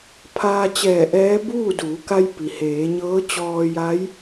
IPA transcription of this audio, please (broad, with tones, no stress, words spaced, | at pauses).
pʰaː˧ t͡ɕɛː˧˩ʔɛː˧˥ buː˥˨duː˩˧ka˧jpi˩ heː˩˧ɲɤː˧˥t͡ɕɔː˧ ja˧˥j